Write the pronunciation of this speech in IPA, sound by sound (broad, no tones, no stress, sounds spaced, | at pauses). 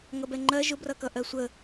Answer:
ŋ ʌ b ɛ ŋ͡ǃ ɜ ʒ ʊ b r ʌ k ʌ ʔ ɜ sʷ ə